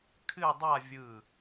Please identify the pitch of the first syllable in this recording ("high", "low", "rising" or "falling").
falling